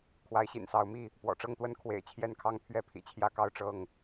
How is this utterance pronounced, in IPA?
kʰwa˨˦ɪ̯ɕḭ˨˩nsɑ˨˦ʊ̯mi˥˨ | pwɔ̰˨˩ʈ͡ʂɤ˥˨ŋt̪wə˦n kʰwḛ˨˩ɪ̯t͡ɕʰjɛ˥˨nkʰɑ˥˨ŋ pʰɥɛ˥˨pʰḭ˨˩t͡ɕʰjä˥˨kɑ˦ʊ̯ ʈ͡ʂɤ˥˨ŋ

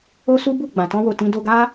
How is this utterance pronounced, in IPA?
o˦ su˦ bu˦˨ ɡ͡bã˨tɔ̃˧wo˨ tĩ˧ do˧ɡa˦

